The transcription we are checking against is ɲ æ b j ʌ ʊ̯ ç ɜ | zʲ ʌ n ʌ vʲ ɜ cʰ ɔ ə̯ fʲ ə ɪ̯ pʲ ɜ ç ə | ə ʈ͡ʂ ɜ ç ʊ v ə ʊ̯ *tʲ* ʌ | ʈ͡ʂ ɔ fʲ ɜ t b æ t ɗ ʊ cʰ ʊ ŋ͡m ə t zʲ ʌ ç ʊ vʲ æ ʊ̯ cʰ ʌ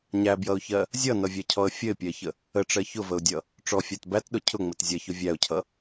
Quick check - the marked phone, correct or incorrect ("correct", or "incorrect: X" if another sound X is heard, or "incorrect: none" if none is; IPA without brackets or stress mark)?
incorrect: dʲ